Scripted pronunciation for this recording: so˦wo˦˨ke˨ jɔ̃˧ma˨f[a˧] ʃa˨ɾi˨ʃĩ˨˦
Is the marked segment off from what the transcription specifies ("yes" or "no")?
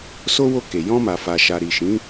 yes